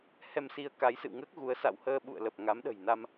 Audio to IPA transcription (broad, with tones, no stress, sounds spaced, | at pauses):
h ɛ˧ m s i˧ ə̯ k a˨˦ j s ɨ̰˧˨ w ŋ əː˦˥ k̚ ɣ u˨˦ ə̯ s a̰˧˨ w h əː˧ ɓ ṵ˧˨ ə̯ l ə˨˩ p̚ ŋ a˨˦ m ɗ ə̤˨˩ j n a˧ m